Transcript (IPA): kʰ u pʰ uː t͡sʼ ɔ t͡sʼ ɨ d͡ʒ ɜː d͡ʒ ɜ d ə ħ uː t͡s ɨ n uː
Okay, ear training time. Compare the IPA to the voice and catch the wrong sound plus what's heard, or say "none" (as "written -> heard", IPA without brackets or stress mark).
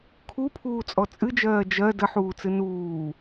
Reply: none